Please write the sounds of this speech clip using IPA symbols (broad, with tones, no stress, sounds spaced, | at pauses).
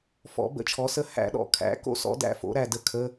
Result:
f ɔ̰˨˩˦ b ə̰˨˩˦ t͡ʃʰ ɔ˩˥ s ə˧˥˧ h æ̰˦˥ ɗ ɔ̰˨˩˦ kʰ æ̰˩˥ k o̰˦˨ s ɔ̰˦˥ d æ̰˦˨ f o̰˩˥ ɾ æ˨˩ d ə˦˨ kʰ ə˧˥˧